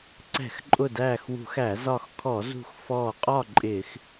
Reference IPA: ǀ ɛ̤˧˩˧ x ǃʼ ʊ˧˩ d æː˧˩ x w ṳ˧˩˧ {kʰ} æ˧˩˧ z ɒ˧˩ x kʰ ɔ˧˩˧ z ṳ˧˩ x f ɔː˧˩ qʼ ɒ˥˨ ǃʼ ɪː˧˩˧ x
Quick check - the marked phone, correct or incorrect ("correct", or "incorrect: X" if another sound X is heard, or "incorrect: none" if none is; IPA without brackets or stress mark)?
incorrect: x